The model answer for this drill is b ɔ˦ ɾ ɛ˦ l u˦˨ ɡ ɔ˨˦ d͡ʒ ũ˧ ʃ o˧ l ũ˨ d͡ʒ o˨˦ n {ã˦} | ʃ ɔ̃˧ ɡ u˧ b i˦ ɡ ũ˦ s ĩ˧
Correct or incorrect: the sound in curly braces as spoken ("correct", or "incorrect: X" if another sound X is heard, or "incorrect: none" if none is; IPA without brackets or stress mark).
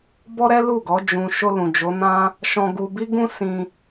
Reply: correct